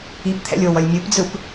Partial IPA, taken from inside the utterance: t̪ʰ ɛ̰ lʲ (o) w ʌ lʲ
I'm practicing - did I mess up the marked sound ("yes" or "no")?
no